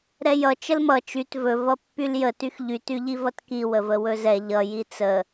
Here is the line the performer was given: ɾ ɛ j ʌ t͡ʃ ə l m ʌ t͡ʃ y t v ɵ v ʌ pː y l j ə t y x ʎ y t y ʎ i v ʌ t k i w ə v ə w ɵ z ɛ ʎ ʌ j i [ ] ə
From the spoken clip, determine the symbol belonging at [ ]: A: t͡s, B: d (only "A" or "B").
A